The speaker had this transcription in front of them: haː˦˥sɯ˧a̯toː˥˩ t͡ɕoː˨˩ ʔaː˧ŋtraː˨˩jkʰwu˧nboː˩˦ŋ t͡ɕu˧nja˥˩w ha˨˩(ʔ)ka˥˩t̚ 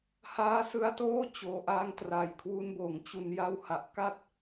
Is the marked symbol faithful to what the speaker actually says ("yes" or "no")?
yes